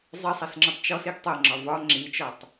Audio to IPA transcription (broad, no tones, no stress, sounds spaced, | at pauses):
zˤ i sˤ ɛ s ŋ͡ǁ ʌ tˤ t͡ʃ ɔ s i ɡ tˤ ʌ ŋ͡ǁ ɒ v ɒ ŋ͡ǁ i t͡ʃ ɒ tˤ